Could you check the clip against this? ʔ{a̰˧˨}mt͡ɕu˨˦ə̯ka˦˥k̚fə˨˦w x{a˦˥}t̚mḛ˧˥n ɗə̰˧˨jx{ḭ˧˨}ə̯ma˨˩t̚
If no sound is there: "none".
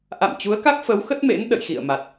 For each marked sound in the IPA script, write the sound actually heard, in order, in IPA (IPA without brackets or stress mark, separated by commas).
a̰˧˨, ə˦˥, ḭ˧˨